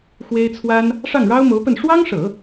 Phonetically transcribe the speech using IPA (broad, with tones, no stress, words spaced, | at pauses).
xwe˥ɪ̯t͡sʰwa˥n | ʂɑ˥˩ŋɻɑ˥ʊ̯mo˧˥ʊ̯pə˥˩n ʂwɑ˥ŋʂɤ˨˩˦